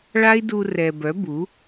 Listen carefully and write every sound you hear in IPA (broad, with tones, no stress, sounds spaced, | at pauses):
ɭ a˦ i̯ d u˧ r ɛ˨ b œ˨˦ b u˨˦